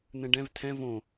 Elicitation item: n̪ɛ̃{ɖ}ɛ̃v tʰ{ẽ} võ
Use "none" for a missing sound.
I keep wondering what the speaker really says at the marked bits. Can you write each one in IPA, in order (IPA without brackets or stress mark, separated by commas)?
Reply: ɖ, ɛ̃